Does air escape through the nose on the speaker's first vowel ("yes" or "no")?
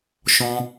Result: yes